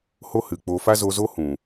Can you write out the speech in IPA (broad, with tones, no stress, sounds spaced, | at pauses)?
h o˦ h ɨ˨ k͡p o˧ f a˦ z o˧ z o˦ h ũ˨